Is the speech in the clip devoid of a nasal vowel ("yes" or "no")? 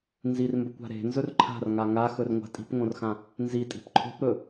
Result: no